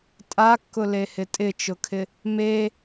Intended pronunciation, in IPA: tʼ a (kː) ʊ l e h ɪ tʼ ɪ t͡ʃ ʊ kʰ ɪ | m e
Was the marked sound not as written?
no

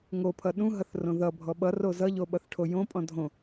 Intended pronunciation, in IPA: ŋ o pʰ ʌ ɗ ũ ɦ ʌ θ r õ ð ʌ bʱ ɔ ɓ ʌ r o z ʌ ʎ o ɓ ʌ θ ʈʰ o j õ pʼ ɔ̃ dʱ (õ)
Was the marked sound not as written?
no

